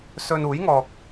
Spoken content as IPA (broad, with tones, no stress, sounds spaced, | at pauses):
s ɵ˧ n uː˨˥ j ŋ ɔː˨ k̚